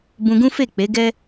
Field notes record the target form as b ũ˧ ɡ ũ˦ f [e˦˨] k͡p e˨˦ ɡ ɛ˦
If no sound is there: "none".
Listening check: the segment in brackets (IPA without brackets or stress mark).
e˦˨